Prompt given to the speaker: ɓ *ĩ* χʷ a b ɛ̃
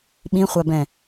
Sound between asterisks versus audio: correct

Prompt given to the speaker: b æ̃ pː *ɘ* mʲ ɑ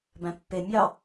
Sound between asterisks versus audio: incorrect: e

